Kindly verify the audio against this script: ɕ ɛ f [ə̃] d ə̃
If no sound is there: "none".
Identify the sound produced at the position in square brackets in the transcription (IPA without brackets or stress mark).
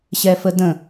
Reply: ə